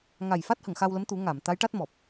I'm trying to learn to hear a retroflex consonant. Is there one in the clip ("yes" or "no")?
yes